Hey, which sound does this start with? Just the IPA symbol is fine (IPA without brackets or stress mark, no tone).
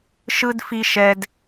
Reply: ʃ